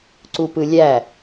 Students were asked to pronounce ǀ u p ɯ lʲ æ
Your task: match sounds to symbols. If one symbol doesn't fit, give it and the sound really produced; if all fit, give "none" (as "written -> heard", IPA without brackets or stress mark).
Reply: none